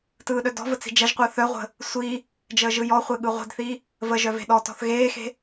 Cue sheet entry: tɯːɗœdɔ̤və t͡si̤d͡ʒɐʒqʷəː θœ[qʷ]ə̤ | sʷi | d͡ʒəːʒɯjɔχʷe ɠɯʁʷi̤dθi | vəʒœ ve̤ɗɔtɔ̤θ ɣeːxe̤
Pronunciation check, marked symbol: incorrect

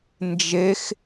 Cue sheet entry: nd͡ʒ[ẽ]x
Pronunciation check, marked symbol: incorrect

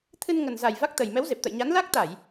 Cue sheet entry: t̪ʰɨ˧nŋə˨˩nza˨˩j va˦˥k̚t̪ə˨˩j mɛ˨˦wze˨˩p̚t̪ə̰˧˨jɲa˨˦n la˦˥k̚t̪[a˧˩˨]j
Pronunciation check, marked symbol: correct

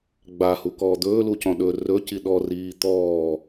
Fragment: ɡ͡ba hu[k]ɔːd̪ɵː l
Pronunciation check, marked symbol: correct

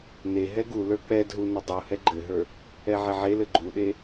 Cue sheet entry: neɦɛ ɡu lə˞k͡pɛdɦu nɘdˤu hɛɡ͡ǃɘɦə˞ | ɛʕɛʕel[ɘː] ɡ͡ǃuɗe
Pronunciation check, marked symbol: incorrect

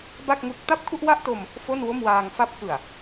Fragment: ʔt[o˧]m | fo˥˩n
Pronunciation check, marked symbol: correct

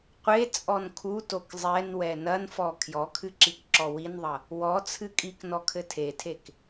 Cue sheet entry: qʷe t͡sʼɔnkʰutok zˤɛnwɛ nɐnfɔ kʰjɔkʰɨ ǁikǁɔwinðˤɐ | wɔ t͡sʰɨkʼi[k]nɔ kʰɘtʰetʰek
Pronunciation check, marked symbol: correct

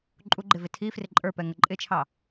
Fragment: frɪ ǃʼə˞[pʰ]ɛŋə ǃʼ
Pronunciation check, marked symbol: incorrect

